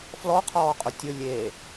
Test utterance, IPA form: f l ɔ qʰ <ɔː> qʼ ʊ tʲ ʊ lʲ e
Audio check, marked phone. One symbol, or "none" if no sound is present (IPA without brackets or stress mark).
ɔː